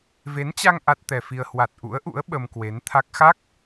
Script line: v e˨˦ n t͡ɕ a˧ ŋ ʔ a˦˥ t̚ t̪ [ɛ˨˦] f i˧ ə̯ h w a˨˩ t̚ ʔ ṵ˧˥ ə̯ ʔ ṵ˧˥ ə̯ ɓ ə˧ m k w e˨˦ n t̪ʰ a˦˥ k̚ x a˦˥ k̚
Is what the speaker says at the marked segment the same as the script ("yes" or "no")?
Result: no